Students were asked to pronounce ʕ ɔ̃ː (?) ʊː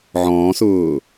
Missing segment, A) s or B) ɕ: A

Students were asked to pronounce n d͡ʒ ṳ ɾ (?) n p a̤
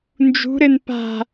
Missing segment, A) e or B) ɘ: B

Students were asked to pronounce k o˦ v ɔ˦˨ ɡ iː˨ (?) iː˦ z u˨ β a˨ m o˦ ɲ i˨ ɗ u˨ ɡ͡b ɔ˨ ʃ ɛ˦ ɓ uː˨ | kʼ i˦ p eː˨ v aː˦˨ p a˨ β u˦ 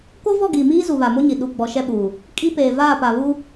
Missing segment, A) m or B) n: A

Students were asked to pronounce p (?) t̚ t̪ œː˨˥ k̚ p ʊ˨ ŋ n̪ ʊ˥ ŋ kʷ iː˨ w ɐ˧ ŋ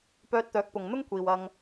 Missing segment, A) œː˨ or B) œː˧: B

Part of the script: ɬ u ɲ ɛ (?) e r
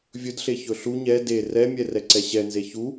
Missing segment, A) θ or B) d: B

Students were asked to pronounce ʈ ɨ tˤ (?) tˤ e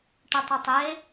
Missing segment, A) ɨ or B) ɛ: A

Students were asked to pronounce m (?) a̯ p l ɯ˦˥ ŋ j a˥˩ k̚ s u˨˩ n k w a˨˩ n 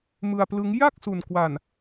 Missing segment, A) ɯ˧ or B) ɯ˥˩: A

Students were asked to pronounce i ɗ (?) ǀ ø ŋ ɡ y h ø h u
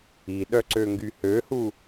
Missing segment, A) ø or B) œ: B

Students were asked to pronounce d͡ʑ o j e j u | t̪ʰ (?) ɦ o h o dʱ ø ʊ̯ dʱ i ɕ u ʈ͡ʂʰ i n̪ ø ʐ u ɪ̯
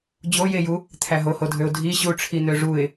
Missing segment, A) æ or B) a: A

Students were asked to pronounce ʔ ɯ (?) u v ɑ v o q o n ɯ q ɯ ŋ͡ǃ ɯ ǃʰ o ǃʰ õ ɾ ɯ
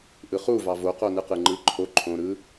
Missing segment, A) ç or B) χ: B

